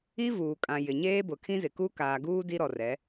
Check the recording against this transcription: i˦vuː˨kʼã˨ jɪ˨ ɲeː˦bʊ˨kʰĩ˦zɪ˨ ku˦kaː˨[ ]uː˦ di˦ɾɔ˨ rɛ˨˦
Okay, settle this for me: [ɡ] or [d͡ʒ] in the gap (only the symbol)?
ɡ